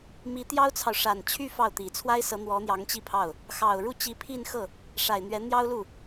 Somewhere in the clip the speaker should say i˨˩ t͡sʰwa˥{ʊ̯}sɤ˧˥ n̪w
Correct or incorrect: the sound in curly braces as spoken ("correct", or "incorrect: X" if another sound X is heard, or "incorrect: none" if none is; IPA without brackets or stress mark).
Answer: incorrect: ɪ̯